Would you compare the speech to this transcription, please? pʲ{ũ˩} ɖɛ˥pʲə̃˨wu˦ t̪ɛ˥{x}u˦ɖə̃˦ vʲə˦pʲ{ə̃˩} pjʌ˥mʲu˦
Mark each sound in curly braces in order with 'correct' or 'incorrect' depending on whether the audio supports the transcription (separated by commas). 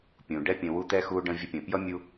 correct, correct, correct